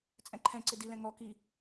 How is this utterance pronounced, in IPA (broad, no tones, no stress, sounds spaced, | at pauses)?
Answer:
t͡sʼ ɛ̃ ǃʰ ɛ̃ ǀ ɪ d i l ɛ̃ ŋ ɔ k i